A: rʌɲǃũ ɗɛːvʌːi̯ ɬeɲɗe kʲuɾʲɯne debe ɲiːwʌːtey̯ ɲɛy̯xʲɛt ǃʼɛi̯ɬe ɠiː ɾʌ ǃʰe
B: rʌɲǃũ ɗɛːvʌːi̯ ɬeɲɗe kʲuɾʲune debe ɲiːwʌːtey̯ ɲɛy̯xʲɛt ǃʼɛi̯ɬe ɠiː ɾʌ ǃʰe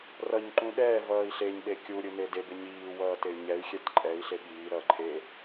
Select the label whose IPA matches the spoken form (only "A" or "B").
A